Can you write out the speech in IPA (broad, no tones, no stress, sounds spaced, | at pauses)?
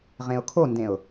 ʁ ẽ ʊ̯ kʰ o n d ẽ ʊ̯